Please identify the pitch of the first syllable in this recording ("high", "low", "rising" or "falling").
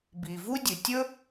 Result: low